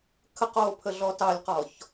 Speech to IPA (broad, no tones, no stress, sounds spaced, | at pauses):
kʰ ə q oː pʰ ə ɮ ɔ t ɑ lʲ q ɔ ç